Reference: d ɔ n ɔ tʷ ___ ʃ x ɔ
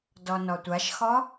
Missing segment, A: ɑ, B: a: B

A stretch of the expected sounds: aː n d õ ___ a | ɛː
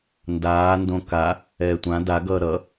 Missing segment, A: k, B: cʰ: A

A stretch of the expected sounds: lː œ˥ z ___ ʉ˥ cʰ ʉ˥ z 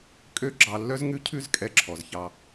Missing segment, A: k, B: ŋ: B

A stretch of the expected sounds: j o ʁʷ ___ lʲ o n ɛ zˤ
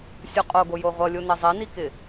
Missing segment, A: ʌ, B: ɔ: A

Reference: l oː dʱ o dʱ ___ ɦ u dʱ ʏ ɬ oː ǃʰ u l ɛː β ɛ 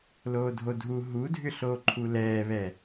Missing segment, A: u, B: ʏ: A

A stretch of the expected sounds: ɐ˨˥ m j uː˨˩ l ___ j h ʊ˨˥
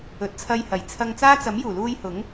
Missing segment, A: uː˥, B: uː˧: B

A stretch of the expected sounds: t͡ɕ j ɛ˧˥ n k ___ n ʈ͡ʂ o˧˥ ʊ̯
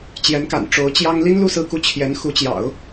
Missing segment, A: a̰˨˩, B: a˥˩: A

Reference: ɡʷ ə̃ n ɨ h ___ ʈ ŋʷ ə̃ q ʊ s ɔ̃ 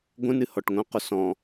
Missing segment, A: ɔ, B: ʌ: A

